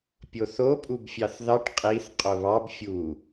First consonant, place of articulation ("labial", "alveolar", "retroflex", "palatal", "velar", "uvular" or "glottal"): labial